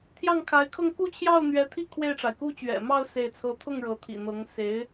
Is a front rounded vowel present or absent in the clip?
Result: absent